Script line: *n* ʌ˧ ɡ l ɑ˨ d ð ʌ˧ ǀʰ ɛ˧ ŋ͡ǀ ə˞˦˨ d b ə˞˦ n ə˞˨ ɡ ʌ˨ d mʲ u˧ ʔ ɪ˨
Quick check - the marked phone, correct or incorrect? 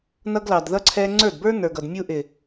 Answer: correct